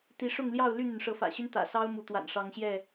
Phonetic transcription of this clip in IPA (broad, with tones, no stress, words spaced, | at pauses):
t̪i˨˦ʂʊ˥˨ŋljɑ˥˨ʊ̯ ly˥˨n̪y˩nʂɤ˨˦ fä̰˨˩ɕy˦n t̪ä̰˨˩sɑ˦ʊ̯ mu˨˦t̪wa̰˨˩nʂɑ˨˦ŋɕjɛ˥˨